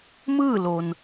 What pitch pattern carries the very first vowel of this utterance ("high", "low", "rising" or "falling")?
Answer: falling